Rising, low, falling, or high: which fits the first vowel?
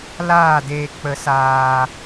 falling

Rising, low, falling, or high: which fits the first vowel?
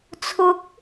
rising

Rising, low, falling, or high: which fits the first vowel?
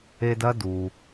high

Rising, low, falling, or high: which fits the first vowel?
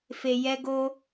low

